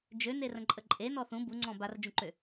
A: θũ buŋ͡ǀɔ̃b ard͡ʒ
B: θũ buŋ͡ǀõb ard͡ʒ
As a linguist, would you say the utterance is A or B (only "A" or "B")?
A